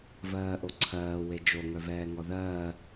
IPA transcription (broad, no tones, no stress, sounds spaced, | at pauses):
v ɜː ʔ o ǀʰ ɜː w e d͡ʒ o ŋ œ v ɛː ŋ ɔ ð ɜː